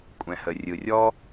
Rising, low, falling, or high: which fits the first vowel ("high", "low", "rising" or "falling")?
low